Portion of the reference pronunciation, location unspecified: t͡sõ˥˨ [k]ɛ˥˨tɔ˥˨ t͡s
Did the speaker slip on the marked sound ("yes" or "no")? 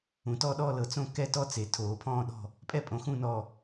no